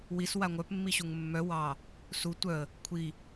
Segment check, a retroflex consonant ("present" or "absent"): absent